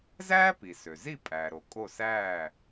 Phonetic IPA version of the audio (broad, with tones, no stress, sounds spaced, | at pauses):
z æː˥ p i˩ s ø˩ z i˥˩ pʼ æː˩ ɾ o˩ kʼ o˥˩ s æː˥˩